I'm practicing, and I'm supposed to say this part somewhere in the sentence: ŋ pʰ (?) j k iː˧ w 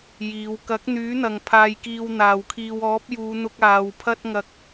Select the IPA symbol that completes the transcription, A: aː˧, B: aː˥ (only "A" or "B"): A